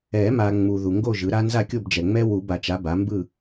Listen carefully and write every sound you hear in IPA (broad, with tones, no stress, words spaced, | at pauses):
ɛ˨˩˦ma˨ ŋ͡mu˨ ðu˨ŋɡo˥˨ʒɯ˩˥ɾa˦˥ nza˥˨kʲo˥˨bd͡ʒɛ˨ŋ͡mɛ˦˥ wu˨˩˦ba˨t͡ʃa˩˥ ba˩˥mbɯ˥˨